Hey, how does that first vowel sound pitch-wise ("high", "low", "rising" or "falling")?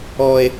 high